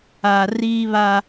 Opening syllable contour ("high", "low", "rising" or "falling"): low